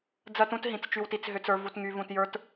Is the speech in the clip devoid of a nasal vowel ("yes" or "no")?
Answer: no